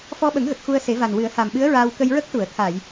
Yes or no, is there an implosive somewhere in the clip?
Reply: yes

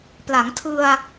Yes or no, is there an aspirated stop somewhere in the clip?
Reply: yes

